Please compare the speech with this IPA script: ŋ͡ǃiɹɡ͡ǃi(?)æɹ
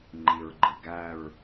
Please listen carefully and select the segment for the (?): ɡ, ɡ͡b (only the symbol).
ɡ